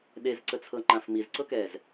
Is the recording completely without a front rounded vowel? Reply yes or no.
yes